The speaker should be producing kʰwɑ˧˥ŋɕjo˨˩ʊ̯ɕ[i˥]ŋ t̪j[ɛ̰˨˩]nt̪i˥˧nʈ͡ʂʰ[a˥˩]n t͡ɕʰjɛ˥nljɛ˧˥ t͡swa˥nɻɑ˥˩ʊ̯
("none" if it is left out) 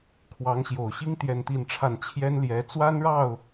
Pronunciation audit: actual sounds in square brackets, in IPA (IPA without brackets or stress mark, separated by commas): i˥, ɛ˥˧, a˥˩